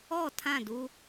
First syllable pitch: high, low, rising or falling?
falling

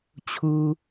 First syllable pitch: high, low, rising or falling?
low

